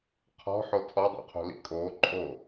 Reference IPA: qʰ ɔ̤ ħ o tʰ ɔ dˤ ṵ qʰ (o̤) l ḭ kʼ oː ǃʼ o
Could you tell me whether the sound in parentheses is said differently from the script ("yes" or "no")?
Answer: no